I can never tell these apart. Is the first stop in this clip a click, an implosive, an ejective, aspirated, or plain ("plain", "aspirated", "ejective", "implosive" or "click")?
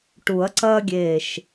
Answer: plain